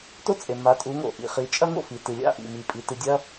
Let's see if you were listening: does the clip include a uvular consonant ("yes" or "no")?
yes